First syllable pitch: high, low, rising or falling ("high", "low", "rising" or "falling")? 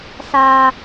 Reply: high